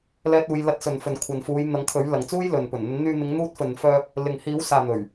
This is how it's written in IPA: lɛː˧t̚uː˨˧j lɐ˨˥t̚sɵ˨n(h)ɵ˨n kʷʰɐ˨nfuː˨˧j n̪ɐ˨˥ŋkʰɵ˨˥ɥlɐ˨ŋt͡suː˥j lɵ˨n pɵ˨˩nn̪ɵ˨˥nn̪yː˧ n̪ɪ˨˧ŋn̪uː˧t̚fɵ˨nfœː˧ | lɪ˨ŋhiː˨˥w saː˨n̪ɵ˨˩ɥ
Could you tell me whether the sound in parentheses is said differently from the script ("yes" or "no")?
yes